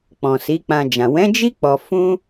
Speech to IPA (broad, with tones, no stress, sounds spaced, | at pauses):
k͡p ɔ̃˨ s i˨˦ k͡p ã˧ d͡ʒ ã˨ w ɛ̃˨˦ d͡ʒ i˦ k͡p ɔ˧ f ũ˦